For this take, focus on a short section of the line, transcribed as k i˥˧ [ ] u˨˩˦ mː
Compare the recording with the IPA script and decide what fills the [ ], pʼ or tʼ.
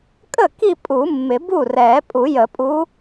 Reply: pʼ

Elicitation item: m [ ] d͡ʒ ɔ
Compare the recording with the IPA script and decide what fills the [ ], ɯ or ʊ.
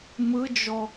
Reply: ɯ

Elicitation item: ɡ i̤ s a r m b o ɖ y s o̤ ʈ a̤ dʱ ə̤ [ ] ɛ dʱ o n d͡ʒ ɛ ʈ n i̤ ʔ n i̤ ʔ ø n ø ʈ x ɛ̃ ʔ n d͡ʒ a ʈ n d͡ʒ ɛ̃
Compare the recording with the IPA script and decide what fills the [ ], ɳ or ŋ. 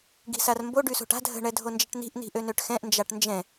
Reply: ɳ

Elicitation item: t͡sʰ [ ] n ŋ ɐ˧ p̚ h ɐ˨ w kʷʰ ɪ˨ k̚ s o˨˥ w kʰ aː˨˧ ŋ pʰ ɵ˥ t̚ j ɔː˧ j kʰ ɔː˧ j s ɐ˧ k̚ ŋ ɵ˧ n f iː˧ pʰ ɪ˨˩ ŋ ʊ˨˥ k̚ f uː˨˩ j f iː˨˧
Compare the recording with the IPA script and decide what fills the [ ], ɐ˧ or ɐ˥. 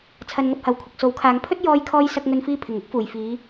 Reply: ɐ˧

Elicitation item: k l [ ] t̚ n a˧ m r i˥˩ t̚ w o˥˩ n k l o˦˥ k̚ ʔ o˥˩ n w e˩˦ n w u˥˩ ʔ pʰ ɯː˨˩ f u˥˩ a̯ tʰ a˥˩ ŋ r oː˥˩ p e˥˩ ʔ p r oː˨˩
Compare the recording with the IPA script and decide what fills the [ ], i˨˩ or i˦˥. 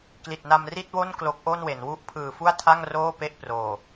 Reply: i˨˩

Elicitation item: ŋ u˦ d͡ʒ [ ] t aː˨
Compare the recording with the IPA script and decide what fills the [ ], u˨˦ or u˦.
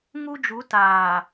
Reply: u˨˦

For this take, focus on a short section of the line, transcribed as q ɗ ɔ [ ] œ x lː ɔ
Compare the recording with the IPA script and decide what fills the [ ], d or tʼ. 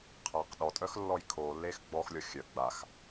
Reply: tʼ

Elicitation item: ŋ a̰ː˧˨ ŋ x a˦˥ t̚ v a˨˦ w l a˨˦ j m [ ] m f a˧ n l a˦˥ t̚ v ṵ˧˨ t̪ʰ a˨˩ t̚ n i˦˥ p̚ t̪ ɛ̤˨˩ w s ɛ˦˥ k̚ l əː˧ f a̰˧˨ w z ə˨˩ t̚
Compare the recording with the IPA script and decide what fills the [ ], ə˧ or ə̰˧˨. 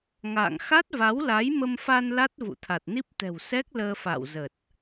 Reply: ə˧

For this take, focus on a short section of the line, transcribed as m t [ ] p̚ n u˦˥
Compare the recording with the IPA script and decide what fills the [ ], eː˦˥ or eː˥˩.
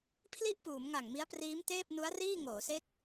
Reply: eː˥˩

